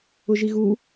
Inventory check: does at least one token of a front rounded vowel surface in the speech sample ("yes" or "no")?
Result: no